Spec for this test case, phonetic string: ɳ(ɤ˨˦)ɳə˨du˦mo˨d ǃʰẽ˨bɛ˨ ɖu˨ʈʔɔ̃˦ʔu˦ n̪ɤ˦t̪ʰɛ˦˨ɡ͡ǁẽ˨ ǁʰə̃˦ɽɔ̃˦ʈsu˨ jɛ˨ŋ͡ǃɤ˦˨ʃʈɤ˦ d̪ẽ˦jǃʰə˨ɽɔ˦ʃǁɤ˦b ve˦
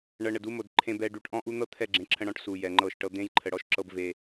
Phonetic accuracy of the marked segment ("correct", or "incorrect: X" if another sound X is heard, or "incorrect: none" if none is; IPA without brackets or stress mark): incorrect: ɤ˨